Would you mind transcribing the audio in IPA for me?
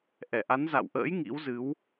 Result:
ʔɛ˧˩ʔa˨˦nza̰˧˨wʔə̰ː˧˥j ŋḭ˧˥wzɨ˨˦w

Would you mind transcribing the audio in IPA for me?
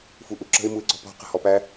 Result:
fuʔuǁə̤ɪ̯ muɪ̯ǀɔ̤pɔ̤ qə̤hɔpæ

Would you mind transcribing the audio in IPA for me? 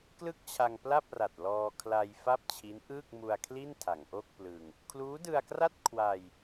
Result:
klɯ˥˩k̚t͡ɕʰa˧ŋpla˥˩p̚ra˨˩t̚ lɔː˧ kʰla˧jfa˥˩p̚ t͡ɕʰi˦˥nʔɯː˥˩k̚mu˧a̯kʰli˥˩n tʰa˩˦ŋʔo˥˩k̚plɯ˧ŋ | kʰluː˦˥dɯ˧a̯kra˥˩t̚ kʰwa˧j

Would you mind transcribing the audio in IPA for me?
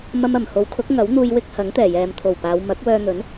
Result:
mɐ˧mɐ˨˩mho˨˥w kʰʊ˨˥k̚ŋɐ˨˥w n̪uː˧jwɪ˥k̚ hɐ˨˥ŋt̪ɛː˨˩jɛː˨mt̪ʰo˨˩w paː˨˧w mɐ˨˥k̚wœː˧n̪ɵ˨˥n

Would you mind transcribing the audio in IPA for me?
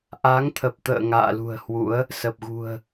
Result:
ʔa˨˦ŋt̪ʰə˨˩p̚t̪ə̰ː˧˨ ŋa̰ː˧˨lṳ˨˩ə̯hwṵ˧˥ə̯ | sə˨˩p̚ɣṳ˨˩ə̯

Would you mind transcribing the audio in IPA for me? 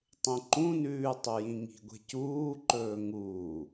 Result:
tˤẽǃũnʉː tˤujĩŋi̤ɡʷe̤ cuːǃɵː ŋuː

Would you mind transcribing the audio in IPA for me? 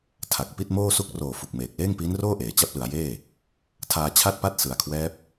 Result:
tʰa˨˩k̚pi˥˩t̚moː˥˩ su˦˥k̚roː˨˩ fu˨˩k̚meː˨˩k̚ leː˥˩ŋpiː˦˥nroː˥˩ʔeː˩˦ t͡ɕa˦˥p̚lɯ˩˦a̯jeː˥˩ | tʰaː˧t͡ɕʰa˥˩t̚pa˦˥t̚ sɯ˩˦a̯kʰwɛː˦˥p̚

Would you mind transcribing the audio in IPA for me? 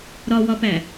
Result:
ɾɒwɒpæ

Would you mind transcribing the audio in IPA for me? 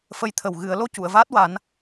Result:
fə˧˥jt̪ʰə˨˩w ɣɨ˨˩˦ə̯ lo˧cu˨˩˨ə̯vaː˦˥t̚wa˨˩˦n

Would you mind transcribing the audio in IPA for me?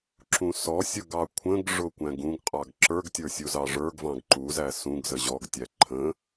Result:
ǁũsɔsʲʊɡ ɑkʷʰə̃ɡʐʊ kʷæ̃ɡũɡqʼɑɡ ǁə˞ɡtʲə˞ sʲuzɑʐə˞ɡvɑ̃ɡ ǃuzæ sũɡzə ʑɔɡtʲæ ǃʰə̃

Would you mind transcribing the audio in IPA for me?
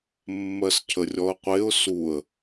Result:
mːɜscʰərʲɔə̯qʷeʊ̯ suə̯

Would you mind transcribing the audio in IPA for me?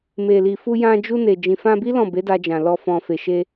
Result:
me˨li˨ fu˧ jã˧d͡ʒu˧ ne˨ d͡ʒĩ˨fã˧bi˦ lɔ̃˦˨be˨˦da˧d͡ʒã˨ lɔ˧ fɔ̃˨fe˨ ʃe˧

